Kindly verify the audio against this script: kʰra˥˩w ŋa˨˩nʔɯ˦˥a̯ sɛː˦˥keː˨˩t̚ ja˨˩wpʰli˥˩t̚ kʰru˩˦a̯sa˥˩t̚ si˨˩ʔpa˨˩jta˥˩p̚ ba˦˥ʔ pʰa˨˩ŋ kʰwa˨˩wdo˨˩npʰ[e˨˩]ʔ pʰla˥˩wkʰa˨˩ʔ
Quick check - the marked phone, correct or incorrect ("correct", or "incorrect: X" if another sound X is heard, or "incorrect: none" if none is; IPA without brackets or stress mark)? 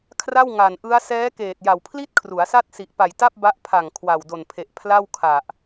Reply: correct